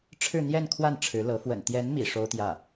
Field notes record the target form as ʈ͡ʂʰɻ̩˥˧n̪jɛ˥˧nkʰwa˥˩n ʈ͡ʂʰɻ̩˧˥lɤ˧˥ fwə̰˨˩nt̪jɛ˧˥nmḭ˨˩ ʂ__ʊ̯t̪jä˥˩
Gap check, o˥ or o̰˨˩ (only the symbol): o˥